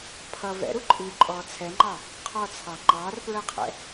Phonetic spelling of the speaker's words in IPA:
pʰ ʌ v ɛ̰ ɾ u ǃʼ iː ǃʼ ɔː t͡sʰ ɛ ŋ͡ǃ ɑ | qʰ ɔ t͡sʰ ɑ ŋ͡ǃ ɑː r p ɹ ɜ qʰ ɛ̰

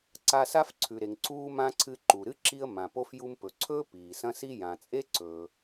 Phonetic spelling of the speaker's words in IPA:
ǀ a˧ s a˥ f ǀʰ ʉ˩ ɾ e˩ ŋ ǀ uː˧ m ã˧ ǀʰ ɨ˧ ǃ u˩ ɾ ɨ˥ ǁ i˧ ə̯ m ã˩ p o˧ f j u˧ m p ɵ˩ ǀʰ ɵː˥ p iː˩ s ɐ̃˥ s i˥ j ã˩ t͡sʼ e˥ ǀ ɵː˩

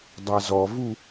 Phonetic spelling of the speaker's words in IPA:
dˤ a z ɔ v u

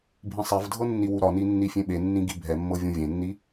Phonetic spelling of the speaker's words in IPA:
bʱ ĩ sˤ ɛ v dʱ ɤ nː i w u ɾ ɒ n i nː i fʲ ẽ ɓ e nː ĩ ɡ i bʱ ɛ mː ɤ vʲ ũ vʲ ẽ nː i

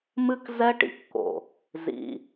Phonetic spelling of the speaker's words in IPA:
m ɨ˦ k z ɛ˦ ʈ ḭ˧ kː o̰˨ | z ḭ˨

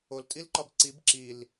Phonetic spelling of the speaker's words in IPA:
o l tʼ i l ǃ ɒ b ǀ i b ǁ i l

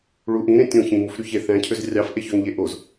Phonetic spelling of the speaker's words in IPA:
ɭ u ʔ ĩ ɾ ẽ tʲ õ ç ĩ ŋ u f ɾ y ç e θ æ̃ cʰ ø z rʲ ɑ f ʔ e ç ø ŋ ʎ e ʔ o z

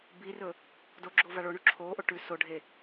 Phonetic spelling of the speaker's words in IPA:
b i r ɵ | d o ɡ͡ǁ o v a ɭ o ɳ u ǁʰ oː ʔ o ʈ ʉ s o ɖʱ e

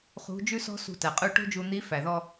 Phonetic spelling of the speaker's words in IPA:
χ ṳ˧˥ d͡ʒ ʉ˥ s ɔ̤˥ s ṳ˧ t æ˩ qʼ ʉ˧ ʈ o̤˥ d͡ʒ u˧ n̪ i˧˥ f æ˩ ð ɔ˧

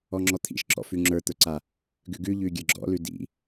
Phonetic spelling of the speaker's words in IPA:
ɔ ŋ͡ǁ ɔ t̪ʰ ḭ ʃ ǁ ɔ̰ f ʉ ŋ͡ǁ ə˞ t̪ ə˞ ǀ a | ɡ ʉ ɡ ʉ ʎ ʉ ɡʲ ə˞ ɡ͡ǁ ɔ̰ l ʉ d ḭ

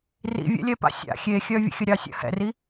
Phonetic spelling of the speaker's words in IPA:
r ḭ vʲ ɛ̰ lʲ ɛ p a̰ sʲ a̰ xʲ e xʲ œ vʲ ə̰ xʲ ə ɾʲ ɑ sʲ ə̰ h ɛ̰ r i

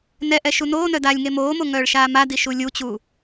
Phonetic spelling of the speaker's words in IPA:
n ɛ ʔ ɛ ʃ u n oː n œ d aː lʲ ŋ e m oː m o ŋ œː ɭ ʃ aː m a d i ʃ u lʲ u t͡ɕ u

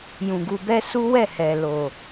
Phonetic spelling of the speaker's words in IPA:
j ũ˨ ɡ u˧ b ɛ˦ s u˦ w ɛ˦˨ h ɛ˨ l o˨

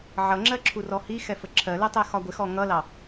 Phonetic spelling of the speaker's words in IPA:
ʕ ʌ ŋ͡ǁ ɜ ǁʰ u r ɔ h i x ɛ f ə ǁʰ ɜ l ɛ tˤ ɛ x ɒ ɡʷ ɪ x ɔ ŋ ʌ l ɑ

